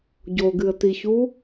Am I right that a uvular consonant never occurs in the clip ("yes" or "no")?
yes